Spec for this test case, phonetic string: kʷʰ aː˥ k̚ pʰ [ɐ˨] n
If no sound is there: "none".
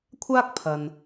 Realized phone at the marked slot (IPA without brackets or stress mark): ɐ˨